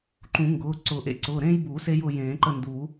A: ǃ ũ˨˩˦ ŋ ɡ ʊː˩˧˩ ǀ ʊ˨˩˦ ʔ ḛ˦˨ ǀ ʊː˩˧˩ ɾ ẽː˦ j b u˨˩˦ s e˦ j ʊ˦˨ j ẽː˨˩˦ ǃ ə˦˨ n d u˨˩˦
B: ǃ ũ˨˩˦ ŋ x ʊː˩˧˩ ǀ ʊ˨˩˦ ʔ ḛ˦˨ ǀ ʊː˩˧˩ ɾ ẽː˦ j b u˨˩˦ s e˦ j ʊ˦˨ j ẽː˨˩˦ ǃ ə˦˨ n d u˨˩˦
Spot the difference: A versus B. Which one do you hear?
A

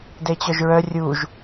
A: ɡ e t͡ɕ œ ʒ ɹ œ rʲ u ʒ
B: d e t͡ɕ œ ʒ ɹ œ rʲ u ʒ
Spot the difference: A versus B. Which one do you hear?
B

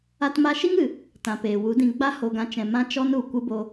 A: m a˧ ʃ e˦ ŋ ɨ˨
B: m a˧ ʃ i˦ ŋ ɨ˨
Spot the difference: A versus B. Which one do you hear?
B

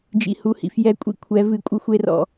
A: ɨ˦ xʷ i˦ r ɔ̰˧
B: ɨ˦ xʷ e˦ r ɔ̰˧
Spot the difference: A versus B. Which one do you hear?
B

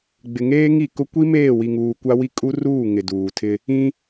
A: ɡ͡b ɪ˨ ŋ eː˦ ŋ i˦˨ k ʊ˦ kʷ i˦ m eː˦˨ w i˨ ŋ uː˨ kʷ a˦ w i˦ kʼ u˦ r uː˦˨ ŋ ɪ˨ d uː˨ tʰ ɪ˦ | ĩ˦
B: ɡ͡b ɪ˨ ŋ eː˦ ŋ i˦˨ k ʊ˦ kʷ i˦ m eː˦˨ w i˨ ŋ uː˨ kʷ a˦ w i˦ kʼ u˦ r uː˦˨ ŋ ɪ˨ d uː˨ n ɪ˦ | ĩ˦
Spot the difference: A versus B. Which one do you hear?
A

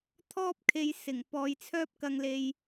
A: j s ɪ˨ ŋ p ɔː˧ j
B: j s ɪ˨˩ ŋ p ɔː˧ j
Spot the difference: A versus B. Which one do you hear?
B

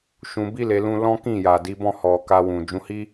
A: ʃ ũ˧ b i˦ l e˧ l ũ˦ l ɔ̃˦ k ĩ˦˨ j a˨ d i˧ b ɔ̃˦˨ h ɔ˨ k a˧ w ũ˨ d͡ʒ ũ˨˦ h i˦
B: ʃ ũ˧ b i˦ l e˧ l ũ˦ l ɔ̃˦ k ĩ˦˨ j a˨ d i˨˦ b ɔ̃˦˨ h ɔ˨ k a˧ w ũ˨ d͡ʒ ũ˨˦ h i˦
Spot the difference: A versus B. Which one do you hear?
B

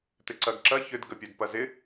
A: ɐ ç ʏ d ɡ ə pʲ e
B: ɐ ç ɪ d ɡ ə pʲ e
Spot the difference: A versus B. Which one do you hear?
A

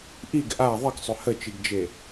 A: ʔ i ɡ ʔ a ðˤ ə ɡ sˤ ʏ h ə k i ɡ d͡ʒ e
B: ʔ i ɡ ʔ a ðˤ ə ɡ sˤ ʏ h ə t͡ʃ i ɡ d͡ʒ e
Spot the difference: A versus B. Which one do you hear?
B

